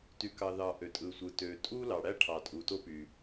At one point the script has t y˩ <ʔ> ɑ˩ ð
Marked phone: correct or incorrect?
incorrect